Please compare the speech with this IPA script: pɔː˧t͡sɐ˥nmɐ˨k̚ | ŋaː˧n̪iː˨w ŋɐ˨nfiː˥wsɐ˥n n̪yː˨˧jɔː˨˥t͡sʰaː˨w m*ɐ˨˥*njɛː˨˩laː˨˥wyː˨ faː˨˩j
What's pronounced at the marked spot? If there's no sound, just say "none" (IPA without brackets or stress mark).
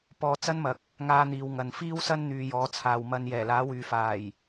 ɐ˨˧